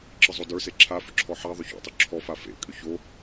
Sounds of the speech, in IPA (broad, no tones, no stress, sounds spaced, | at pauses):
ǁ ə zˤ o d ə˞ s e ǁʰ a f ʏ ǁʰ ɔ ħ a ðˤ ʏ ç o̰ tˤ ʏ ǁʰ ɔ f a f ḛ kʼ ʏ ç o